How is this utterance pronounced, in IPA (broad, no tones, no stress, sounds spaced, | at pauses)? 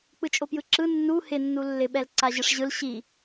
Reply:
k͡p ɯ t͡ʃʼ o p j ɯ ǁ ɯ nː u h ɪ nː u lː ɪ ɓ ɛ l ǀ a ʑ ɯ ʂ ʑ ɯ l ɕ i